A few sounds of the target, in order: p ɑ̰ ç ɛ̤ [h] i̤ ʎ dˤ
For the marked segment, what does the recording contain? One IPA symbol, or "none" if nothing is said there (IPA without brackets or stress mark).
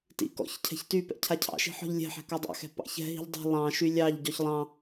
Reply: ɦ